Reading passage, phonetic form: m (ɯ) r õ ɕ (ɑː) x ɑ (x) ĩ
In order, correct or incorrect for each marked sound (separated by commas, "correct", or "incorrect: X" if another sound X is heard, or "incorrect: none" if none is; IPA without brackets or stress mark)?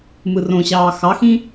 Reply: correct, correct, correct